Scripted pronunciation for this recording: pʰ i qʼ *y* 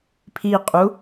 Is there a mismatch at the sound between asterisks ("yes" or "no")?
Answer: yes